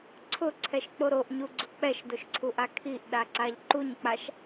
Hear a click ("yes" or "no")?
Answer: yes